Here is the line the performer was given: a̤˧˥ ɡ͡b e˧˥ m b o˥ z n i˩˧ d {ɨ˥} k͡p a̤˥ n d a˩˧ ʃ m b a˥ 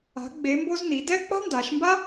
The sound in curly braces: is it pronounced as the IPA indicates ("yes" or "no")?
no